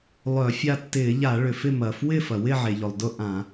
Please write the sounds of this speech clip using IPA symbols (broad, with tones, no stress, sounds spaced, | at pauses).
lˠ œ˧˩˧ fʲ a˥˨ tː ɪː˧˩˧ ʎ a˧˩˧ ɭ ʏ˩ f ɪ˥˨ m ɐː˩ f w ɪː˥˨ f ɐ˩ w ɪ˥˨ ʕ e˩ ʎ ʊ˩ lˠ d ʊ˥˨ ʔ ã˧˩˧